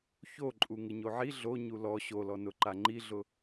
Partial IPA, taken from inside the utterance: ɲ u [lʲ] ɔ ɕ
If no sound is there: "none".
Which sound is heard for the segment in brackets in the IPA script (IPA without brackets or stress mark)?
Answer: l